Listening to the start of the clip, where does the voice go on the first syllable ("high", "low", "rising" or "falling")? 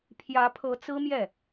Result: rising